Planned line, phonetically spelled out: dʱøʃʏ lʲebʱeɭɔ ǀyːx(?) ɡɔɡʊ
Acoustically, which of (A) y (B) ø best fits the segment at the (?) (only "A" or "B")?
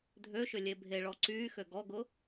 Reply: B